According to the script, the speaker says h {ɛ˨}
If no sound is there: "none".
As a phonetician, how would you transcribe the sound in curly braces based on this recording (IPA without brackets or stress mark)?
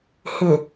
ɪ˨